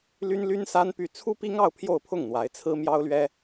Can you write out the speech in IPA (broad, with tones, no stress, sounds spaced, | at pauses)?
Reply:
l y˥ n l y˥ n s a˥ n p y˥˩ t͡sʰ u˥ p i˥ ŋ ɑ˥˧ ʊ̯ pʰ j o˥˧ ʊ̯ pʰ ʊ˥˩ ŋ n̪ w a˧˥ ɪ̯ t͡sʰ ɹ̩˥ m j ɑ˥ ʊ̯ l ɥ ɛ˥